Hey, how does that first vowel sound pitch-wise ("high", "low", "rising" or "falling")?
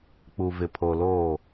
low